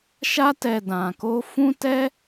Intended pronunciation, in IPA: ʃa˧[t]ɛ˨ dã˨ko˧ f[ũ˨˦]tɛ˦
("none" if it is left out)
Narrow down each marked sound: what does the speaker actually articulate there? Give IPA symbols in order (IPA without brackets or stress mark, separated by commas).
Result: t, ũ˦